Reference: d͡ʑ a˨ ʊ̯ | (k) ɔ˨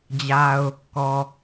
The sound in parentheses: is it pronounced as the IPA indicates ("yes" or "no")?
yes